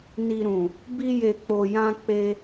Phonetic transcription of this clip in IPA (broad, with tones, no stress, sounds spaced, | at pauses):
n i˨ ɾ ũ˨ | b i˧ j e˨ k͡p o˨ j ã˧ k͡p e˧